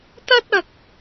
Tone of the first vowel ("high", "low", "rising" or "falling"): high